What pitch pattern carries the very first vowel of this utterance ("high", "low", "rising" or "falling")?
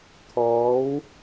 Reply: rising